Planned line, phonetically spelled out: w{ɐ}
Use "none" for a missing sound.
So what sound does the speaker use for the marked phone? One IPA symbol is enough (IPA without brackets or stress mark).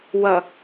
ɐ